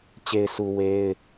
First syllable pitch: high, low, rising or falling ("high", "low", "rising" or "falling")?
low